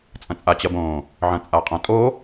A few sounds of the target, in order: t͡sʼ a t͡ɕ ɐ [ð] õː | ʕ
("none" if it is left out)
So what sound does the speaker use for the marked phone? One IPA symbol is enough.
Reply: b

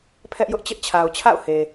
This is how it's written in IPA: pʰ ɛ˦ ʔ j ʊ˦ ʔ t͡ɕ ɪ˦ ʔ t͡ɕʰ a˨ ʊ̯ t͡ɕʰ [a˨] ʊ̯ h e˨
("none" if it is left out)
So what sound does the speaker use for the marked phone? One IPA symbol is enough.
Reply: a̰˦˨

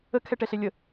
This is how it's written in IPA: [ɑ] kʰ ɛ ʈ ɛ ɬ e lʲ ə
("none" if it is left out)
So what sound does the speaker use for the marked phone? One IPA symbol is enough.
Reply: ə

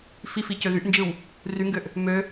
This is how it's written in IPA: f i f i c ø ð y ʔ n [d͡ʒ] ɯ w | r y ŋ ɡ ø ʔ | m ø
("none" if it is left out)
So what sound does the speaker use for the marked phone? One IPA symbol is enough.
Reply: d͡ʒ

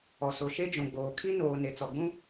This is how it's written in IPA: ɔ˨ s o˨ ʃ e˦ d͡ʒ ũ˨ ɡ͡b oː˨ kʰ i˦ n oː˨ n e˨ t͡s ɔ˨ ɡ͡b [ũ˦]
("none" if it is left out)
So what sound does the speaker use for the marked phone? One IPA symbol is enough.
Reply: ũ˦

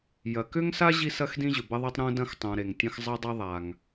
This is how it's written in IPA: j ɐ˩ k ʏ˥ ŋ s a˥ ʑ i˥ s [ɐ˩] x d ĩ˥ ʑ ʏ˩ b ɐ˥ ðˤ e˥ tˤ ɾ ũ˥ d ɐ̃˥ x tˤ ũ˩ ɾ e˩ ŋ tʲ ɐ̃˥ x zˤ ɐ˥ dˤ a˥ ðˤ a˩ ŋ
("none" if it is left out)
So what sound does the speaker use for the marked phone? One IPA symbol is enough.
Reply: ɐ˥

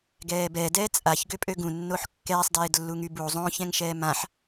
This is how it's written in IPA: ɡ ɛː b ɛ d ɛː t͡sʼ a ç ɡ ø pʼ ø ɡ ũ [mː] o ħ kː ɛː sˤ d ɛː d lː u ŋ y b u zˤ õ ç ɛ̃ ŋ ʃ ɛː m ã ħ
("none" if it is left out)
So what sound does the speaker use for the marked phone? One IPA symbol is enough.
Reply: nː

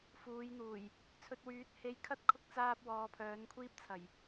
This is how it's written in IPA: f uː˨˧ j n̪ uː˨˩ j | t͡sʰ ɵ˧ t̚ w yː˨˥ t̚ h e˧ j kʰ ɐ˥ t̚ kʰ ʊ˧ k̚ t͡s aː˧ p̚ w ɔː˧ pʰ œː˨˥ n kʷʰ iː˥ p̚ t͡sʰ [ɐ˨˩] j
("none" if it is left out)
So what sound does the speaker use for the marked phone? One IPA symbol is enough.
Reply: ɐ˨˩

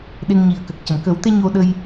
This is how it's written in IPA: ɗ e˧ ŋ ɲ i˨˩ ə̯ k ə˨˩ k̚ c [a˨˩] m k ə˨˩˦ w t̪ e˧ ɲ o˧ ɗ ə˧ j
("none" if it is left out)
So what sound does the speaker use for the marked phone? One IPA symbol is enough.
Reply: ə˨˩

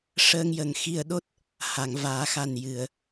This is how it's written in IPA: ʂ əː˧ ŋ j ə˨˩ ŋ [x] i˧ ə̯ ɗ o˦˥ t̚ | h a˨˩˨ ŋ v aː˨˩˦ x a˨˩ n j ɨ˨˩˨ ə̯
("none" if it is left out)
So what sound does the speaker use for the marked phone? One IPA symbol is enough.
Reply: x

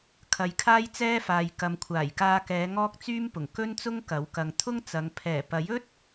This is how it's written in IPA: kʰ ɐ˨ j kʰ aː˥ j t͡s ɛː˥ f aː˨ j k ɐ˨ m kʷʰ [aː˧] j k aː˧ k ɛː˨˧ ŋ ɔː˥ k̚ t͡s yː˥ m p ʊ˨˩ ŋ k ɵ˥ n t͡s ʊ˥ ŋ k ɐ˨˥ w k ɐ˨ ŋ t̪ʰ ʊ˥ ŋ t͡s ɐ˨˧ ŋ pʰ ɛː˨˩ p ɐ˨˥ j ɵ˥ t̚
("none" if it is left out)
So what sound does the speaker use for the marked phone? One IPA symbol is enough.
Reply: aː˨˩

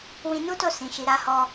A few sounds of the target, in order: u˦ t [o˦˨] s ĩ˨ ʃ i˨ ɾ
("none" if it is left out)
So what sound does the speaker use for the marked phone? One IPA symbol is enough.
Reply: o˦˨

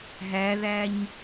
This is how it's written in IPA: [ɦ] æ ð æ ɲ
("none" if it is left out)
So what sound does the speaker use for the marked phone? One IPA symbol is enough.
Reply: ɦ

